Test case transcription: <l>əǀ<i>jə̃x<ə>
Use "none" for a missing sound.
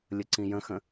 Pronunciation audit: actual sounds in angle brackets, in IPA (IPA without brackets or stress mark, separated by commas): lʲ, ĩ, ə̃